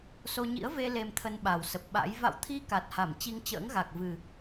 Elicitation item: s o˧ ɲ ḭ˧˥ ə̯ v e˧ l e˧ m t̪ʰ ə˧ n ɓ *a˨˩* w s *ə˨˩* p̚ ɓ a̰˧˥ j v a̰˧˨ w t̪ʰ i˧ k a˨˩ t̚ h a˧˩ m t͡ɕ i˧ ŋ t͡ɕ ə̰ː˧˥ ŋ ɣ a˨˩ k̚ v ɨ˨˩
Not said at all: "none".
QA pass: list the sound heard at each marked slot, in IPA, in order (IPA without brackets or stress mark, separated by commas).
a˨˩, ə˨˩